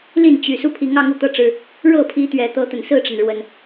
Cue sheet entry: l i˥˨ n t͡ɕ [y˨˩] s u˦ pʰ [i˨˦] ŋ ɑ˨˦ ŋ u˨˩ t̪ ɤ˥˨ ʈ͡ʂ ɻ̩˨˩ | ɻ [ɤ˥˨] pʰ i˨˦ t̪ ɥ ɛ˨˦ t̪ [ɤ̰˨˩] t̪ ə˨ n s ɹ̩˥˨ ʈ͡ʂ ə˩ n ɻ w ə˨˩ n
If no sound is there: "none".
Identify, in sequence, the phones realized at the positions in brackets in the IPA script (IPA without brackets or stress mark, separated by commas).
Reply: y˨˩, i˨˦, ɤ˥˨, ɤ˦